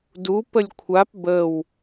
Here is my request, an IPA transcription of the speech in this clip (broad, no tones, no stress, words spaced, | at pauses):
du pəlʲkʷʰap bəw